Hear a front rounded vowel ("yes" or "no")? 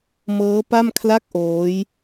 no